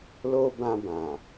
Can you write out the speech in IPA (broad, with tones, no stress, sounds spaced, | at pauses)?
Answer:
l o˧ b ã˧ b ã˨